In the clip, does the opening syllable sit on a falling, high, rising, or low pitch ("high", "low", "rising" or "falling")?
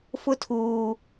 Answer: high